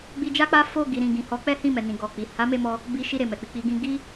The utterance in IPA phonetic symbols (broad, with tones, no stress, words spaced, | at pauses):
ɡ͡bi˧ d͡ʒa˦k͡pa˦ fo˦˨ɡi˨ɾĩ˨ɡĩ˨ hɔ˨˦k͡pɛ˦hĩ˦˨mɛ˨ nĩ˨ɡɔ˨k͡pi˨ ha˨˦me˦˨mɔ˧ | bi˧ʃi˧ ɾe˨mɛ˨k͡pi˧ k͡pi˧ɡĩ˦ ɡi˦